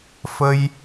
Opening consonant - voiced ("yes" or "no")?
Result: no